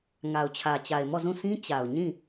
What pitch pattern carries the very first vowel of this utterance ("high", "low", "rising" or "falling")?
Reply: low